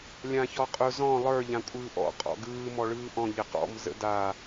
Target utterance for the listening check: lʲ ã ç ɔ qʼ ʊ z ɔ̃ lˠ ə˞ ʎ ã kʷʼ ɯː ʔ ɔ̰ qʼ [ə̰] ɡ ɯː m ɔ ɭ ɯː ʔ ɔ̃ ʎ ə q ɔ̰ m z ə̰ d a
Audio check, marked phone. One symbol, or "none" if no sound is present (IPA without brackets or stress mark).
ɔ̰